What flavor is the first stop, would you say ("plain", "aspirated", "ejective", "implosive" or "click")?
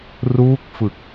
plain